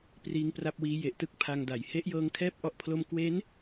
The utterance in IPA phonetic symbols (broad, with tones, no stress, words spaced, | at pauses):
priː˦˥ŋpra˥˩p̚wiː˦˥ je˨˩ʔtɯ˦˥k̚ pʰa˧ŋda˩˦j he˦˥ʔjɤː˦˥ŋkʰɛː˥˩p̚ ʔɔ˦˥ʔ pʰlo˥˩m kwe˦˥n